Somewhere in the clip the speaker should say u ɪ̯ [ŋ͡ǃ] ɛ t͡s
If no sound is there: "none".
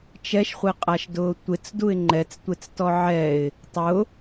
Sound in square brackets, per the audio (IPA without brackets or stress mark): ŋ͡ǃ